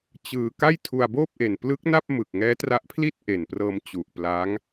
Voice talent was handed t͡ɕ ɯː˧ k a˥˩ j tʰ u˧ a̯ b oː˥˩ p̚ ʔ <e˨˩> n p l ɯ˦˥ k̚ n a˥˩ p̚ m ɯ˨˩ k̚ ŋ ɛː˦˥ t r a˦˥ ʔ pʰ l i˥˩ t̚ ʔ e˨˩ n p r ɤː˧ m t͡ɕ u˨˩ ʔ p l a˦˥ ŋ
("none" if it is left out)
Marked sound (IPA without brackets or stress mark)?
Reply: e˨˩